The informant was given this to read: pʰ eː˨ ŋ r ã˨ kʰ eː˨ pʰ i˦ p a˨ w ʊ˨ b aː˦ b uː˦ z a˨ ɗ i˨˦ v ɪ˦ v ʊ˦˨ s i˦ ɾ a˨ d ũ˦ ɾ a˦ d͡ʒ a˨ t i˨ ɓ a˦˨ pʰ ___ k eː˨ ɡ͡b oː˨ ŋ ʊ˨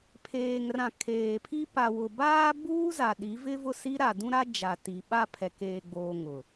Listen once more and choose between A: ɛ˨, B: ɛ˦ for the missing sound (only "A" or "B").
A